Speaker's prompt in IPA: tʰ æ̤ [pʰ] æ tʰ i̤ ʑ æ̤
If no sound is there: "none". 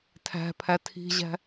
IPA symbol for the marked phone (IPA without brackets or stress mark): pʰ